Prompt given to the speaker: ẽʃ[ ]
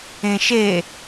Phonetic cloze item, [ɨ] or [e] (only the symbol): e